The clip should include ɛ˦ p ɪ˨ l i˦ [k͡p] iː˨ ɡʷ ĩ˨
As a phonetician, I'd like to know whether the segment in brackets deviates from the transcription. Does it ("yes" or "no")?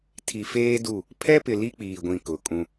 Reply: no